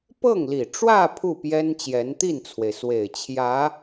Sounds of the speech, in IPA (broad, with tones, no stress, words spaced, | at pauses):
pɤ˥˩ŋli˨˩ʈ͡ʂwä˥˧ pʰu˥˩pjɛ˥n t͡ɕjɛ˧˥nt̪i˥˩nt͡sʰwe˩ɪ̯swe˨˩ɪ̯ t͡ɕʰjä˧˥